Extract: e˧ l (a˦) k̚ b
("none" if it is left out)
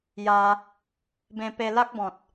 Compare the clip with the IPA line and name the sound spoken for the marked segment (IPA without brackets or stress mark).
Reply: a˦